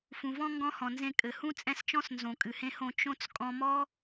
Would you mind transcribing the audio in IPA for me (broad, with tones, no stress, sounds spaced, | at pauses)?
f ũ˨ v ɔ̃˦ ŋ ɡ ɔ̃˦ h ɔ̃˨ n z ẽ˧ kʼ ɘ˨ h ũ˦ t͡sʼ ɛ̃˧ s t͡ʃ ɔ̃˦ s n z õ˨ kʼ ɨ˨ h ẽ˧ h õ˧ t͡ʃ õ˦ t͡s kʼ ɔ̃˧ m ɔ˦